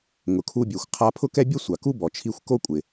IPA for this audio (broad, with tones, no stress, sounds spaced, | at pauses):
ŋ ʊ˩ kʰ u˧ bʲ e˩ xʷ qʰ a˧ pʰ ʊ˥ k ɛ˥ bʲ ʊ˥ sʷ a˩ k u˥ b ɔ˩ t͡ʃʰ i˧ xʷ k o˥ kʷʼ ɪ˩